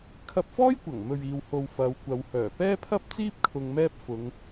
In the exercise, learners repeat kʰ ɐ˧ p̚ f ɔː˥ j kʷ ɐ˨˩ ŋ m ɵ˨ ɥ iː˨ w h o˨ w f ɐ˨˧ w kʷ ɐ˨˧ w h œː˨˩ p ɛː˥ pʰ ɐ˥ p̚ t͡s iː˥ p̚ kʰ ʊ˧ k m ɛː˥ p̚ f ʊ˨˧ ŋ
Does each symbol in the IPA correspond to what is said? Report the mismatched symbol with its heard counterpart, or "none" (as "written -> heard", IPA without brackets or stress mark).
k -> ŋ